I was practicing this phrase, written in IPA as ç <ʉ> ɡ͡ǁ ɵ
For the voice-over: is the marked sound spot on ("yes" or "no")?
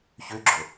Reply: yes